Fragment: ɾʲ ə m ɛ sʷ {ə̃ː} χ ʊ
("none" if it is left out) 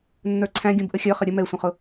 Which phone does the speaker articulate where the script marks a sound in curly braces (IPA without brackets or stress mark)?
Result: ə̃